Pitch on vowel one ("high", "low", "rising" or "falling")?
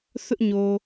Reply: high